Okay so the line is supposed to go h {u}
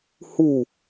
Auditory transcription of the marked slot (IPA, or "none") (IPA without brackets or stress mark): u